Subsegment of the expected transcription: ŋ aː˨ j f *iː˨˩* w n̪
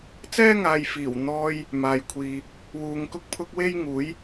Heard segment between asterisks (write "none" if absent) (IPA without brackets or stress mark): iː˨˩